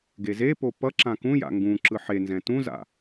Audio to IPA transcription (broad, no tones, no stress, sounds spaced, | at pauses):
ɡ e z e p o p ʌ ǁ ã k ũ j a̰ ŋ ɡ ũ ǁ ɯ ħ e n z ɛ̃ t ũ z a̰